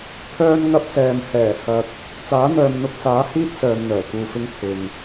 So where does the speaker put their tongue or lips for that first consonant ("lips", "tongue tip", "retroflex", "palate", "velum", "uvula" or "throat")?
lips